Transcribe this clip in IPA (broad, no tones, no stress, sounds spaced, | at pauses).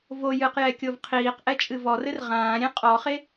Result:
v o j ɨ q j ɛ kʲ o v qʰ iː q ʔ ɛ t͡ʃʼ ɨ v ɔ r ɘ r ʁ ãː ɾʲ ẽ qʼ ɔ χ e